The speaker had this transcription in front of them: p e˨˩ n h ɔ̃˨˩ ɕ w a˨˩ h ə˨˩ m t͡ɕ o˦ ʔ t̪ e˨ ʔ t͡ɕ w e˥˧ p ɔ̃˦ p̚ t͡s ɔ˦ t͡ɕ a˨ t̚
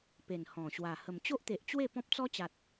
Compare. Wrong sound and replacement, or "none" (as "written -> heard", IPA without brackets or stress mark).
none